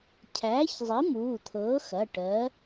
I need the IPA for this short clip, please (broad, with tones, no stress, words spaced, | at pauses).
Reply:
cʰæː˨˥çzˤi˨˥ muː˩˧˩t̪ʰɤː˨˥ xɐ˩˧˩ʈɜ˨˥